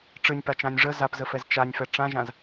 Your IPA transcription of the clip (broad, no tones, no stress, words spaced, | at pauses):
ʈ͡ʂɨnʲpat͡ʃãnʲ ʐə zapzəfɛz t͡ʃanʲfɛ ʈ͡ʂãʒãz